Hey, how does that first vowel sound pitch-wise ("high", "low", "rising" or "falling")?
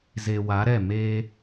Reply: low